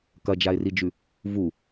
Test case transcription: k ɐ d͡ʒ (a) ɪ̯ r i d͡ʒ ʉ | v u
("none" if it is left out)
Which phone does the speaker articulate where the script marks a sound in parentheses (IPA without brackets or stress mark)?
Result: a